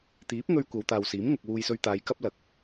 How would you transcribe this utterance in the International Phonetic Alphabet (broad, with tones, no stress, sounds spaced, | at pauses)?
t̪ iː˨˥ p̚ ŋ ɵ˧ ɥ kʷ ɐ˨˧ w t̪ aː˨ w s iː˨˥ m ŋ ʊ˨ k̚ w uː˧ j s ɵ˧ ɥ t̪ aː˨˧ j k ɐ˥ p̚ l ɐ˨˥ k̚